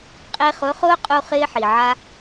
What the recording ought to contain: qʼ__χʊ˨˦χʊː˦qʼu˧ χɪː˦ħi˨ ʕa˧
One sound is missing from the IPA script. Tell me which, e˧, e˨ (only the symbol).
e˧